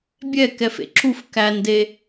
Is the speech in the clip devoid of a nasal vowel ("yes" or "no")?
yes